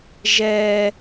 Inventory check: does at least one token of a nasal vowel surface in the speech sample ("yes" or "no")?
no